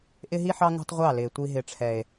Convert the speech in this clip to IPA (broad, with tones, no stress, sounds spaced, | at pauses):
ʔ ɪ˦ ɦ i˦ ħ ɑ˦ ŋ ṳ˦ tˤ ʁʷ ɑ˦˨ l ɪː˨ tʷ i˦ ɦ ɪ˦˨ ʈ͡ʂʰ ɛ˦ e̯